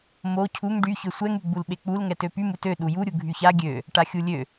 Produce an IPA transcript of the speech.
m o cʰ u ŋ ɖ y ç ø sʷ ɛ ŋ y ɡ͡b u l ɓ e k͡p u l ŋ ɛ t ø p y m u t ø ɗ u j u ɾʲ u ɡʱ y ç a ɡʲ ø | ʈ a xʲ u lʲ ø

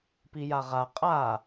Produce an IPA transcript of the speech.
p i j a ʁ a qʼ a

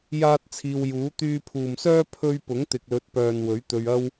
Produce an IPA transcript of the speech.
j aː˥ t̚ t͡sʰ iː˧ w j uː˨˥ t̪ yː˧ pʰ uː˨ m s œː˥ pʰ ɵ˥ ɥ p ʊ˨˥ ŋ t̪ ɪ˨ k̚ l ɵ˨˥ t̚ p œː˨ n w ɵ˨˥ ɥ t̪ ɵ˧ ɥ ɐ˥ w

